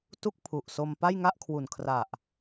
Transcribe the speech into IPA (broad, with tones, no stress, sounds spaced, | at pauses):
t u˥˩ k̚ pʰ u˨˩ ʔ s o˧ m p a˥˩ j ŋ a˥˩ ʔ kʰ w u˨˩ n kʰ r a˨˩ ʔ